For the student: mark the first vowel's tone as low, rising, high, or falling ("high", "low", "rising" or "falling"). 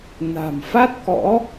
low